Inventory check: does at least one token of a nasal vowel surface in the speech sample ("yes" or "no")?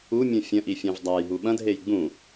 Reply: yes